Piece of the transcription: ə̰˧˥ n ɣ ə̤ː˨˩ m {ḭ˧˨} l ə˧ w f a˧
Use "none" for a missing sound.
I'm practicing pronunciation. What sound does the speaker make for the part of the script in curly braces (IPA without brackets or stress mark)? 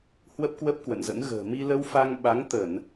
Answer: i˧